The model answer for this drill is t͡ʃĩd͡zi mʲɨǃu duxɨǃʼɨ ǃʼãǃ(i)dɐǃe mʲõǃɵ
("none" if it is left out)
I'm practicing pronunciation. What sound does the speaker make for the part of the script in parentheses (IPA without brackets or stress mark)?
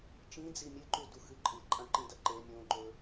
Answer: ĩ